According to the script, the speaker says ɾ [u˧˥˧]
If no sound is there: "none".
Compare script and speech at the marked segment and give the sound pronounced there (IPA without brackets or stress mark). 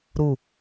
u˥˨